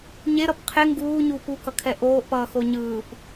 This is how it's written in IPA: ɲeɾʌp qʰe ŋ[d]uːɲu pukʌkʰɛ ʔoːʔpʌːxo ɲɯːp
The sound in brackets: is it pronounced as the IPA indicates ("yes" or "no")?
no